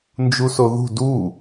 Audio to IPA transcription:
n d͡ʒ u s o ð ṳ d u

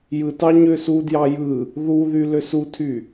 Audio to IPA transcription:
j ɯ t ɑ ɲ ø s u d j ɑ j ɯ | ð u ð y l ø s u tʰ y

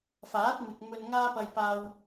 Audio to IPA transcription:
f aː˨˥ t̚ m ɪ˨ k̚ m ɵ˧ n ŋ aː˥ p ɐ˧ j p aː˧ w

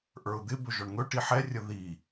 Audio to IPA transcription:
ʔ ə˞ ʊ̯ d̪ ɪ b ɵ ʒ ɔ ɳ ŋ ɵ ʈ i ħ ɛ rʲ ə ð i

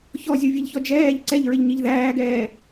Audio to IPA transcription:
ç ɔ zʲ u vʲ ɛ ʎ ç ɔ d͡ʒ ɛː ʎ ǀ ɛ ʎ ɹ ɪ ʎ ɲ i ʎ ð æː ɡ ɛː

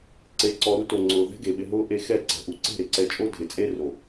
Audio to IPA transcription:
ǀ e˨ ǀ ɔ˨ ɾ u˧ t o˨ ŋ͡ǀ ʊː˨ ð ɛ̤˦ ɡ e˨ ɓ ɪ˧ ɦ ʊː˦ ʔ e˧ x ɛ˦˨ ǀ ɛ̤˨ ʔ u˨ ǀ e̤˦˨ ɾ ɪ˨ ǀ ɛ˧ t͡ʃʼ o˦ dʱ ɪ˨ t͡sʼ e˦ r o˨

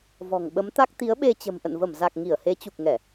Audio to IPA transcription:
v ɔ̤˨˩ ŋ ɓ ə˨˦ m t̪ a˦˥ k̚ t̪ i˨˦ ə̯ ɓ e˧ t͡ɕ ə̤˨˩ m ʔ ə̰˧˨ n v ə˧˩ m z a˨˩ k̚ ŋ i˧˩ ə̯ h e˨˦ t͡ɕ u˨˩ k̚ ŋ ɛ˧˩˨

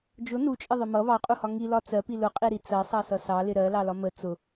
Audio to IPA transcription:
d͡ʒ ʊ n u t͡ʃʼ ɪ ðˤ ə m ʌ β ɑ qʼ u h ɒ ŋ i l ɒ t͡s ɜ p i l ʊ qʼ i ɾ i t͡s ɜ sˤ ɑ s ʌ s ɑ l ɪ ɾ ɜ l ɑ l ɒ m ə t͡s ʊ

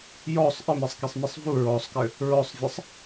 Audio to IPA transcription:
j ɔ sˤ ʔ ɘ m ɛ sˤ k i sˤ m ɛ sˤ v u ɹ ɔ sˤ k ɘ | ɹ ɔ sˤ vʲ ʌ sˤ

